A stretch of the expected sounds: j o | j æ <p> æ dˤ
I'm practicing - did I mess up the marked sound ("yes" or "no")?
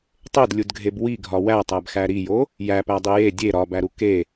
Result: no